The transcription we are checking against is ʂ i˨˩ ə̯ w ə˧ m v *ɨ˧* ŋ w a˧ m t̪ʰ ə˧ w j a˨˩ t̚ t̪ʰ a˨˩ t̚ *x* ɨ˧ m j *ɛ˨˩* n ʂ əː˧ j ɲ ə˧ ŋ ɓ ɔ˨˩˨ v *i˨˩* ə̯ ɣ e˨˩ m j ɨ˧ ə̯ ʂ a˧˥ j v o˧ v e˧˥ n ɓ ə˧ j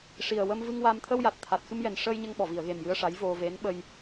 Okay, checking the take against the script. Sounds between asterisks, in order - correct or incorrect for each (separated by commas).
correct, correct, correct, incorrect